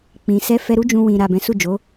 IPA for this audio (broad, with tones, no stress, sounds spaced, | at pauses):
k͡p ĩ˨ s ɛ˧ f ɛ˧ ɾ u˦ d͡ʒ ũ˧ w ĩ˨ ɾ a˨ b ɛ̃˨˦ s u˦˨ d͡ʒ o˨˦